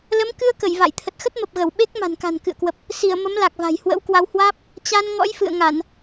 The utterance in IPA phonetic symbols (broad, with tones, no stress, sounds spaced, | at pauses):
l ə˨˦ m k ɨ˧ ə̯ k ə˧˩ j v a̰˧˨ j t̪ʰ ə˨˩ t̚ x ə˦˥ t̚ m ə˨˩ p̚ ɣ ə˧˩ w ɓ e˦˥ k̚ m a̤˨˩ n k a̤˨˩ n k ɨ̰˧˨ ə̯ k w ə˨˩ p̚ | s i˧˩ ə̯ m ə˨˦ m l a˨˩ k̚ v a̤˨˩ j h w ə̰˧˥ w k w a˧ w h w aː˦˥ p̚ | t͡ɕ a˧ n ŋ ɔ̰˧˥ j f ɨ̰˧˨ ə̯ ŋ a˧˩˨ n